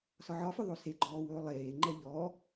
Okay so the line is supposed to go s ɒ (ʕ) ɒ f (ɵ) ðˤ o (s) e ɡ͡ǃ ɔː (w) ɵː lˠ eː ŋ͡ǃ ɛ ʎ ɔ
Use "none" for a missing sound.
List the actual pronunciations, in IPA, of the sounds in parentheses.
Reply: ʕ, ɵ, s, w

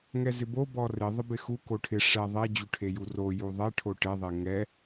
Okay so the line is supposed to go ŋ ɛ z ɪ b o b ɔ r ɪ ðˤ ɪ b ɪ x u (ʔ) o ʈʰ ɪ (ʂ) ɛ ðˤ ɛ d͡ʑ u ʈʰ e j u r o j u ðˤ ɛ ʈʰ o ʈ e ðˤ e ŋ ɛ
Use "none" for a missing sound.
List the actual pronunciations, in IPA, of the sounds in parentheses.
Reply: k, ʂ

